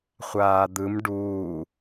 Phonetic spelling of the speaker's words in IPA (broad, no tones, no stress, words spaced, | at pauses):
χʷaːd̪ɯm ɖuː